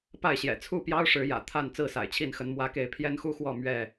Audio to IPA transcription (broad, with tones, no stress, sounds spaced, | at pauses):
p a˥˨ ɪ̯ ɕ j ɛ̰˨˩ t͡sʰ u˥˨ p j ɑ˦ ʊ̯ ʂ ɻ̩˨˦ j ä̰˨˩ t̪ʰ a˥˨ n t͡s ɹ̩˥˨ s a̰˨˩ ɪ̯ t͡ɕʰ i˥˨ n x ə˨˦ n m w ä˦ k e˥˨ ɪ̯ pʰ j ɛ˦ n x u˦ x w ɔ˥˨ m ɥ ɛ˥˨